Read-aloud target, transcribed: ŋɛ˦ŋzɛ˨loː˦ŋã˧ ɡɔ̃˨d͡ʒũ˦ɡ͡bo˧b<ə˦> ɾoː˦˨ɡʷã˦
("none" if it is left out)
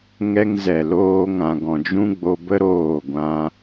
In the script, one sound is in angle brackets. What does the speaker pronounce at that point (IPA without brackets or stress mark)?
ə˦